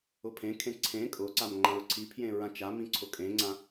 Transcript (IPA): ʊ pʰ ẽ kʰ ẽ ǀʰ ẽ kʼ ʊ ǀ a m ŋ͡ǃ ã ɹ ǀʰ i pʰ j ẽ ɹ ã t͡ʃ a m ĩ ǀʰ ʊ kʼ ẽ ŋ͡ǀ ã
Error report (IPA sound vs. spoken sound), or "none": none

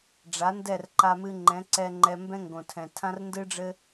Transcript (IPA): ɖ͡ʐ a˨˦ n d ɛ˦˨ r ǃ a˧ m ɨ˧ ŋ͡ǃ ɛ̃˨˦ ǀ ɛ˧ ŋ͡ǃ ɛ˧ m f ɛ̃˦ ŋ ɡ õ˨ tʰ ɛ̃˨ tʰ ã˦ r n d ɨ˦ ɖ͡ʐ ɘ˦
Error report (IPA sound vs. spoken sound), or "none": f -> b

